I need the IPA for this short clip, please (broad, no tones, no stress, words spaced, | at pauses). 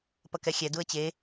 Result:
pʌkɛxʲɛ duə̯t͡ɕe